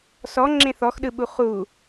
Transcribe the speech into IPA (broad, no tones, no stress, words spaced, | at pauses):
sɔ ŋ͡ǁẽθɔxɗɯɓu χu